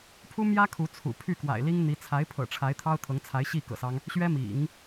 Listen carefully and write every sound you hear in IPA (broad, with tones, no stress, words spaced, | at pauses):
pʰu˥mjä˥ kʰu˧˥t͡sʰṵ˨˩ pʰy˥˩kwa̰˨˩ɪ̯li˥ŋ n̪i˧˥ t͡sʰa˧˥ɪ̯pʰɤ̰˨˩ ʈ͡ʂʰa˧˥ɪ̯t̪ʰɑ˥ʊ̯t̪ʰɤ˧˥ŋt͡sʰa˧˥ɪ̯ ɕi˥˩ kɤ̰˨˩sɑ˦ŋ | ɕɥɛ˥mḭ˨˩˦ŋ